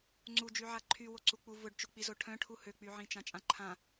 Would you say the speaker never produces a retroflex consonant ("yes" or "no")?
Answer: no